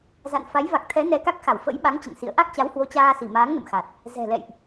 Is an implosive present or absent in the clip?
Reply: present